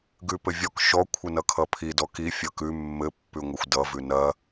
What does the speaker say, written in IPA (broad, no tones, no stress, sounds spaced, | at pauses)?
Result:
ɡ ʉ p ɘ vʲ ɔ k ʃ ɔ kʷʰ ɘ n ʌ kʰ ʌ pʰ i d ɔ k i fʲ ʌ k ʉ mː ɘ pː ʉ ŋʷ ɘ xʷ d ʌ v ʉ n ɐ